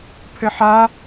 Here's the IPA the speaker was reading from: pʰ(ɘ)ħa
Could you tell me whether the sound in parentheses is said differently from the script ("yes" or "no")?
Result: no